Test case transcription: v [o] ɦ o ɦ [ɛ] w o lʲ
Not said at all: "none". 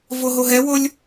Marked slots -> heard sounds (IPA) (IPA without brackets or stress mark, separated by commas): o, ɛ